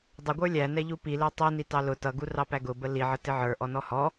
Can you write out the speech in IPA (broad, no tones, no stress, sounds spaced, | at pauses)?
dˤ ə ɡʷ ə˞ lʲ æ n ɛ ʎ u p i l ɛ tˤ i n i t ɑ l ʊ t ʌ ɡ u r ɑ p æ ɡ ʊ b ə l i ʕ ə t ɪ ʕ ə˞ ʔ ɔ n ɔ h ɔ